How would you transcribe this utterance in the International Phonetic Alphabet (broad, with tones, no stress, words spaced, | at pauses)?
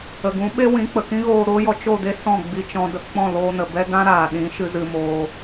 ə˨ɡũ˨˦ɓe˦wĩ˨˦ k͡pə˨kĩ˦ɣoː˧ ɾoː˦jɔ˧ t͡ʃo˦˨de˦ sɔ̃˦˨ɡ͡bi˧t͡ʃɔ̃˧ də˨k͡pɔ̃˦˨loː˧nə˨ bɛ˦dã˦ɾaː˨ ɗĩ˨˦ʃɨ˧ zɨ˧moː˧